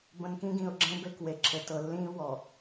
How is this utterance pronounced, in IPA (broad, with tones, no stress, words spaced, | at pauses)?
bə̃˨nkĩ˦ɡĩ˨ʊ̯ɡ͡ǁẽ˦ be˦kwe˨ǁʰɘ˨ tɤ˨lːĩː˦wɔ˨